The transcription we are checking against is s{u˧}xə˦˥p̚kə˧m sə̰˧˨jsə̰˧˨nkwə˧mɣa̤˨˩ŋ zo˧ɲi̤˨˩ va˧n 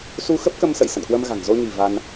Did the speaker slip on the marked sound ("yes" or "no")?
no